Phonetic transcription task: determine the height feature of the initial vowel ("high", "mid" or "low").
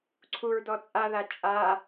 high